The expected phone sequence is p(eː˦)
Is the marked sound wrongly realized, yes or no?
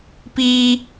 yes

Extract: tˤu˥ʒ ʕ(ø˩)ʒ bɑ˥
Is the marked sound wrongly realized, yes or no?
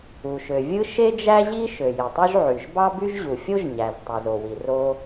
yes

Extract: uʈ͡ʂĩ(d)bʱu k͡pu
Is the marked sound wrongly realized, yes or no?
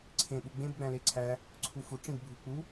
no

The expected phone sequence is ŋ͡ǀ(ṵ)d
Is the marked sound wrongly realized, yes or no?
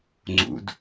no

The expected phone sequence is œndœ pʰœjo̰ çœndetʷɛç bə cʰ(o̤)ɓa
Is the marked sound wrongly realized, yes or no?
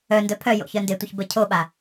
yes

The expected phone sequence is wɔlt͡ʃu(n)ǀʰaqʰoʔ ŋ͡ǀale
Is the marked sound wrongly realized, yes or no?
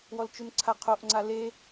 no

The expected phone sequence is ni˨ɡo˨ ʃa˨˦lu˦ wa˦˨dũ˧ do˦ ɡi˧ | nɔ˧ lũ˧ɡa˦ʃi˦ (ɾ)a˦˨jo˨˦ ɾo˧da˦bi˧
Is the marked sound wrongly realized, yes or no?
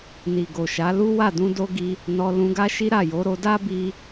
no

